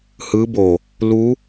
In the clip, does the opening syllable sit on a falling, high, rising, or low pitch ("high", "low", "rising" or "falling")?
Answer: rising